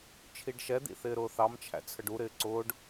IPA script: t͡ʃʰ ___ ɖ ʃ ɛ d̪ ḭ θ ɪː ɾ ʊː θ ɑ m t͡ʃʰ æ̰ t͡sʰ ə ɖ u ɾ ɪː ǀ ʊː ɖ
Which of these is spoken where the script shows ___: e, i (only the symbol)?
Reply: i